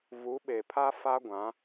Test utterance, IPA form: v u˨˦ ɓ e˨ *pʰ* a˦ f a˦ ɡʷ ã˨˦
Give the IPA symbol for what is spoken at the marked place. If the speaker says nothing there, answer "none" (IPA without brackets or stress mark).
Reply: pʰ